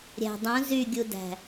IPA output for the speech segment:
ɾʲ æ̤ dˤ ũ z y ɡʲ u d æ̤

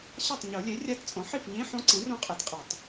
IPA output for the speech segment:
ɕ a˥˩ tˤ ɲ o˨˩˦ lʲ e˩˥ rʲ a˧˥ t t͡sʼ õ˩˥ ħ i˥˩ f ɲ ĩ˧˥˧ ħ õ˧˥ ǀ ĩ˩˥ r õ˧˥ qʼ e˩˥ t qʼ ɯ˨˩˦ tˤ

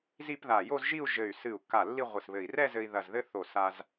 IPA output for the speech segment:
z i˥˧ p ð a˧˩ j o˥˧ z ʒ i˥˧ u̯ ʒ ɘ˧˩ y̯ s ɨ˧˩ u̯ kː a˧˩ lː i˥˧ ʁʷ ɨ˧˩ s β ɘ˧˩ i̯ r ɛ˥˧ z ɘ˧ i̯ ð ɐ˧˩ z ð ɘ˥ θ o˧˩ s a˧ z

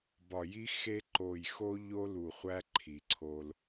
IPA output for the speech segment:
b ɒ˨ j i˦ x e˦ ǃ o˨ j x o˦ ʎ o˦ l u˨ χʷ æ˦ ǃʰ i˨ ǀʰ o˦ l

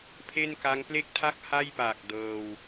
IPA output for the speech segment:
pʰ e˥˩ n k a˦˥ ŋ p l e˥˩ k̚ tʰ a˥˩ k̚ h a˥˩ j p aː˨˩ k̚ d ɤː˧ w

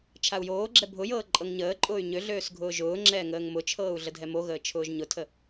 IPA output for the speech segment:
t͡ʃʰ a u̯ j oː ɡ͡ǁ ɛ bʱ ʊ j ɤː ǃʼ ɤ ŋ ɲ əː ǃʼ ʊː y̯ ɲ ø ɮ øː s ɡʱ ʊː ʒ ʊː ŋ͡ǁ ɛː ŋ əː ŋ m ʊ t͡ʃʰ ɤː u̯ ɮ ə dʱ ɛ m o ɣ əː t͡ʃʰ ʊː ʒ ɲ ʊ tʰ ə

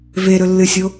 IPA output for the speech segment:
v e ɾ ɵ lː ɨ sʲ o

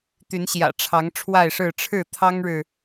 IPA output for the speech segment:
t̪ y˨˦ n ɕ j ä̰˨˩ ʈ͡ʂʰ ɑ˨˦ ŋ ʈ͡ʂʰ w a˥˨ ɪ̯ ʂ ɻ̩˥˨ ʈ͡ʂʰ ɻ̩˥˨ t̪ʰ ɑ˦ ŋ ɻ ɻ̩˨

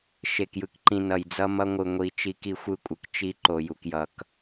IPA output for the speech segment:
ʃ e˨ k j ɯ˨ k ǃ ĩ˨ n ʌ˨ j d͡z ʌ˦ m ʌ˦ ŋʷ ɯ˨ ŋʷ i˨ t͡ʃ i˦ k i˦ xʷ ɯ˦ kʷʼ ɯ˨ k t͡ʃ i˦ ǃ o˨ j u˨ k j ʌ˨ k

